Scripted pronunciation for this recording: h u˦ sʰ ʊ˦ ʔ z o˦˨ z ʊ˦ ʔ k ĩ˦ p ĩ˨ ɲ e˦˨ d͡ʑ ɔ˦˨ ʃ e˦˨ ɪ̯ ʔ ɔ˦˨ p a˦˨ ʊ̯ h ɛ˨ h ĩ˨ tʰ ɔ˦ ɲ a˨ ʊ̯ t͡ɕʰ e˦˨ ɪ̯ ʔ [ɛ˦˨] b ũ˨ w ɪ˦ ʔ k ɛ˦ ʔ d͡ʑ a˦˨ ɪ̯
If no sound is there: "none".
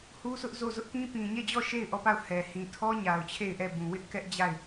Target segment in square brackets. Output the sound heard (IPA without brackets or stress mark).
ɛ˦˨